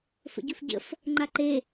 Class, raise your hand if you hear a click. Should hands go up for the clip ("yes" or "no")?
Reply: yes